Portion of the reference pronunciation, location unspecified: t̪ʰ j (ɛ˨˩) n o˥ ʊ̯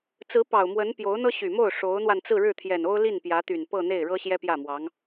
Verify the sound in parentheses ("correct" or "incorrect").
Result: correct